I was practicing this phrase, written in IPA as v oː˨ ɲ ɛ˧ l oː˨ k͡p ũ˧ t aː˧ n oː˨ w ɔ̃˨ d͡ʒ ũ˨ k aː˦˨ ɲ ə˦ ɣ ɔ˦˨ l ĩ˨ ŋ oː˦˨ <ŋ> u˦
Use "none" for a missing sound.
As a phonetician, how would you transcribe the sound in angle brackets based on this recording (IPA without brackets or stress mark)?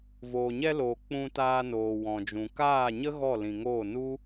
n